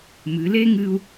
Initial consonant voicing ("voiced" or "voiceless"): voiced